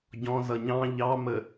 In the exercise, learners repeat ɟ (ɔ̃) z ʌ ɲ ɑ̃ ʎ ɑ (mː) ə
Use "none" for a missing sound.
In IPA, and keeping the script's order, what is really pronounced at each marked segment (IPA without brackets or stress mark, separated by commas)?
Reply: ɔ̃, m